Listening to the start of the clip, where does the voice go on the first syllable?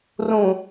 low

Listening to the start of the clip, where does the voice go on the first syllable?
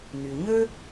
low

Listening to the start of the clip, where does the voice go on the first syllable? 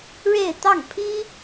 falling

